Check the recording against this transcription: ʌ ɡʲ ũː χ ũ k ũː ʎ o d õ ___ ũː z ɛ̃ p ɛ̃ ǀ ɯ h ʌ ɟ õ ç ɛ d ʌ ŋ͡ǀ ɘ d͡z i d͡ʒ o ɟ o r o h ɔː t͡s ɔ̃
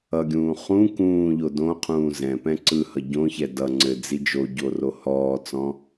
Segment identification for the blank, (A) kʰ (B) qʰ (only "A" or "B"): B